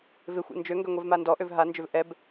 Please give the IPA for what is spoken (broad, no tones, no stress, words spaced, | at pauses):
vɪxʷḛ nd͡ʒøŋɡœ ŋʷɛvmandɔʔøv ɦand͡ʒøv ʔɛb